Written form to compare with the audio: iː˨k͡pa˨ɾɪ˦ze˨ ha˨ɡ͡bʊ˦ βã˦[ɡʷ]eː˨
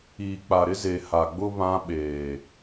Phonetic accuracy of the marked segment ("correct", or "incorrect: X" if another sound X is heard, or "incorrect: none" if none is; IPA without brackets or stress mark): incorrect: ɓ